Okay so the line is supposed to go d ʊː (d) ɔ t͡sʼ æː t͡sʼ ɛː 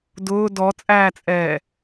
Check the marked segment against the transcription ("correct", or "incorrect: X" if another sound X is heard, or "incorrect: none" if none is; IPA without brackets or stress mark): correct